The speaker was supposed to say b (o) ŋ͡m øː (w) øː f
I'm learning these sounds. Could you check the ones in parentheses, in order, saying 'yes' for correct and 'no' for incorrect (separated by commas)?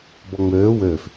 no, yes